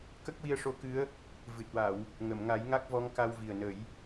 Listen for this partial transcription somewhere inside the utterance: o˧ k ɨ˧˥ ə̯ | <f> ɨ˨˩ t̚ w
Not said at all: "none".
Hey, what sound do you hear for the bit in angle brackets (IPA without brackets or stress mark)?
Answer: v